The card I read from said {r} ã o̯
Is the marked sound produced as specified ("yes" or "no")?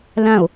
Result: no